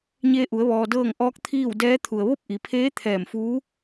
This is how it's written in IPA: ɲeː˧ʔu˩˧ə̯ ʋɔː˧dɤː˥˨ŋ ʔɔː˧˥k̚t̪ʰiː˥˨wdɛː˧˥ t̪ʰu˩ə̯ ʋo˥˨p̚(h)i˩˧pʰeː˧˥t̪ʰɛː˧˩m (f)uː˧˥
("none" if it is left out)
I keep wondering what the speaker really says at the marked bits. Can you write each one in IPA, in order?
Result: ʔ, f

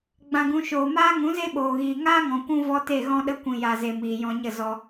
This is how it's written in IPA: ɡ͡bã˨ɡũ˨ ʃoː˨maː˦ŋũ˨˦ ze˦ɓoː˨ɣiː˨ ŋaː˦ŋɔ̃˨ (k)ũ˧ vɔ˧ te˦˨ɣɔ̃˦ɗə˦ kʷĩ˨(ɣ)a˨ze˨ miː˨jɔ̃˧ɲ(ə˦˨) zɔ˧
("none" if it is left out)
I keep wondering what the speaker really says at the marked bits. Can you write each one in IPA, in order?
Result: kʷ, j, ə˦˨

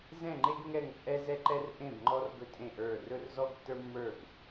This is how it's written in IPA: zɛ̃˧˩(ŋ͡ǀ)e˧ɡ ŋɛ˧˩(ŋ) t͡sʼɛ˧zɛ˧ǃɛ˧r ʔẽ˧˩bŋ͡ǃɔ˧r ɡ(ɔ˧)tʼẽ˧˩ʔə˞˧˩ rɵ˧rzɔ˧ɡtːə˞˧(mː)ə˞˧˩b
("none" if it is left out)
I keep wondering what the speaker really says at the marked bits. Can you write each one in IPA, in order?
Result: ŋ͡ǃ, ŋ, ɵ˧, mː

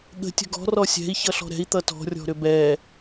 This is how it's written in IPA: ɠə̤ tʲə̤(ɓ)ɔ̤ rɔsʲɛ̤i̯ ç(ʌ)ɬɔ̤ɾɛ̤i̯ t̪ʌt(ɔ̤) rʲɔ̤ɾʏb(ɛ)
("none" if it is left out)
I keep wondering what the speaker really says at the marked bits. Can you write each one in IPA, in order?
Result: ɡ, ʌ, ɔ̤, ɛ

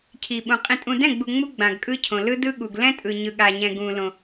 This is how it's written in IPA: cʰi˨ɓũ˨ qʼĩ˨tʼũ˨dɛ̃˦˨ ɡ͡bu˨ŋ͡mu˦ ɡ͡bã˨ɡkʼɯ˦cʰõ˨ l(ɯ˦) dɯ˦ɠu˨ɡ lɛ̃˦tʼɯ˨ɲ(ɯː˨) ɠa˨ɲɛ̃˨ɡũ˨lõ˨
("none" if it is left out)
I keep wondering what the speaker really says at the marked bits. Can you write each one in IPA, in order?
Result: ɯ˦, ɯ˨

